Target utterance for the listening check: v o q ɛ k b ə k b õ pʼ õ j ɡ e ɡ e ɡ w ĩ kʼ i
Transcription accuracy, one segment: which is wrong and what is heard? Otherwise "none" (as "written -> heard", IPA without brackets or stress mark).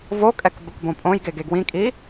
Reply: q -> kʼ